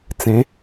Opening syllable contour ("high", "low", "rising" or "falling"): rising